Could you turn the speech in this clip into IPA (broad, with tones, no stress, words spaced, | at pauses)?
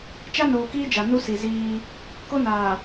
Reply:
t͡ʃa˦noː˨kiː˦ d͡ʒa˨ nu˦ si˨ ziː˦ | ko˦naː˨